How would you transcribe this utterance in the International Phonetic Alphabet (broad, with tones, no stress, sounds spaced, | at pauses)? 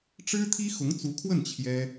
ʈ͡ʂ ɻ̩˥ t̪ʰ i˥ x ʊ˧˥ ŋ t͡s u˧˥ kʰ w ə˥˩ n t͡ɕʰ j ɛ˥